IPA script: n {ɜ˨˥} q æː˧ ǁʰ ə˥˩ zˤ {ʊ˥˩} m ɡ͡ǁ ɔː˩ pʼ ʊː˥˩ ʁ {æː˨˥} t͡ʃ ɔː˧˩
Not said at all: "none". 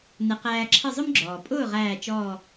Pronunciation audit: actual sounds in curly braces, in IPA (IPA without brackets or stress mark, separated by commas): ɛ˨˥, ʊ˥, æː˧˩